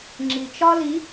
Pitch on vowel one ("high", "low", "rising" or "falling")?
low